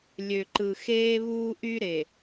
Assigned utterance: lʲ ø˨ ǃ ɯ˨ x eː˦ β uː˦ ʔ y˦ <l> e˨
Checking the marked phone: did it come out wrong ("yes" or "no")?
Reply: yes